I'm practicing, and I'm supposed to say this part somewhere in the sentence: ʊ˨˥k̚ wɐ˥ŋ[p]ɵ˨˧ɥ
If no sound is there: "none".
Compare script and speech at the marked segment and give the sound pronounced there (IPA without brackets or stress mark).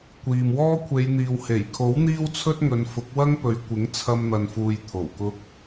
p